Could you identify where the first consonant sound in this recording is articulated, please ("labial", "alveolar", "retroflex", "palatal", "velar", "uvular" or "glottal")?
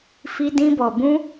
labial